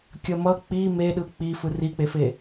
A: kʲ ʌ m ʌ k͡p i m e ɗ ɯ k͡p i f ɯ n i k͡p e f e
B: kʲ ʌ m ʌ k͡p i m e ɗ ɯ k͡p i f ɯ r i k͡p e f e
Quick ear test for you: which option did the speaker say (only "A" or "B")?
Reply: B